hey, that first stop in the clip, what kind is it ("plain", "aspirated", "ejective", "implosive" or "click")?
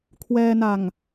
aspirated